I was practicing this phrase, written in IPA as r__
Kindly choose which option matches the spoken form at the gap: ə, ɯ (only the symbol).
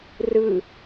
ɯ